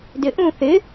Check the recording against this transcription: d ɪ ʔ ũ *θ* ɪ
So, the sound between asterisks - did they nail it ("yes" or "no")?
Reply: yes